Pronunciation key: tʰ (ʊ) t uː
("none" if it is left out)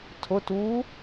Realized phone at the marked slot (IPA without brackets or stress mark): ʊ